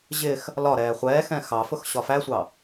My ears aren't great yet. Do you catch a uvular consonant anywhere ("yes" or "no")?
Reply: yes